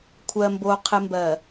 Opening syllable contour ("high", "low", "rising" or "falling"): low